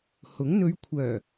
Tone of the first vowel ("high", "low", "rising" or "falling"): rising